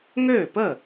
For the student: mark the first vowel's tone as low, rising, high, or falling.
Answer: falling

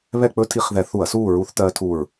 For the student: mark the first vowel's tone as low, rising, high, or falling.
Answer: falling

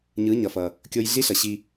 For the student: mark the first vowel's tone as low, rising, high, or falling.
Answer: rising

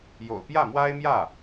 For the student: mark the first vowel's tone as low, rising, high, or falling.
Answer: low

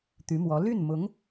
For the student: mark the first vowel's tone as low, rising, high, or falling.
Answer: rising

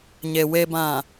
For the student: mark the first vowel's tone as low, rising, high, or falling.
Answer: low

